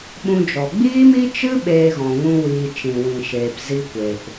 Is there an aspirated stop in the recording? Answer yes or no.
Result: no